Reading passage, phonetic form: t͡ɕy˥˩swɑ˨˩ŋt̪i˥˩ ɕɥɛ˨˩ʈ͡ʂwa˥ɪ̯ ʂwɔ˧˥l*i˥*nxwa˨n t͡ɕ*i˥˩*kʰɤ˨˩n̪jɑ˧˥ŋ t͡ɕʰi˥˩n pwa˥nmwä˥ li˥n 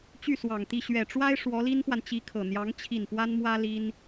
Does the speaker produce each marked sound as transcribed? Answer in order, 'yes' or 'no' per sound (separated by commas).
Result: yes, no